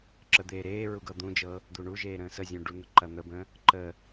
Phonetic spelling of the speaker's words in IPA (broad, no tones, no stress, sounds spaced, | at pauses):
ǁ ə d̪ eː ɾ eː ɹ u ɡ ɤ d̪ ũ d͡ʒ ɤ | d̪ u ɳ u ʒ eː ɾ ə̃ː s ə zʲ ũ ɖ u n̪ ə ǃ ɐ n̪ ə b ə̃ː | ǃ ə